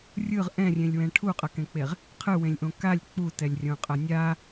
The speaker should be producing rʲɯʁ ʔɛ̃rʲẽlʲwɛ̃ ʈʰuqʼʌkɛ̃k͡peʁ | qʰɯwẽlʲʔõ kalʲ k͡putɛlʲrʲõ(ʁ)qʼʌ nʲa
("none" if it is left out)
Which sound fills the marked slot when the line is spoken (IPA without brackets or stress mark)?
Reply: none